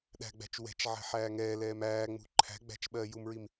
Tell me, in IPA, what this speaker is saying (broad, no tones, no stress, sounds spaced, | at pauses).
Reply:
ɗ æ̤ ɡ͡b æ̤ t͡ʃ w ɛ̤ t͡ʃ ʕ ɛ̤ ħ æː ŋ ɛː l ɛː m æː ŋ͡m ṳ ǃʰ æ̤ ɡ͡b æ̤ t͡ʃ ɓ ɜː j u m ɹ i m